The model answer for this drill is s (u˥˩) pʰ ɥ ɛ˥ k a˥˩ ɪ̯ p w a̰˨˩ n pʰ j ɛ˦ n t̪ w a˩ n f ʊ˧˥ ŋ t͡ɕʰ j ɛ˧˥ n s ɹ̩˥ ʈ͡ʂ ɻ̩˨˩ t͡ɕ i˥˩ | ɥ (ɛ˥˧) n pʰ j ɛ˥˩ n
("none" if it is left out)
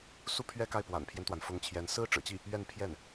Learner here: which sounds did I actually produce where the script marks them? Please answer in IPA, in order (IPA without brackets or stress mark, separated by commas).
u˥˩, ɛ˥˧